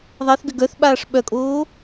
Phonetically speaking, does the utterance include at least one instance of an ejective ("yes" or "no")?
yes